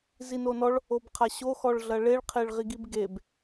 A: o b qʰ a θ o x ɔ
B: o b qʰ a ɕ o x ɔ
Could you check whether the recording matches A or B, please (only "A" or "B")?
B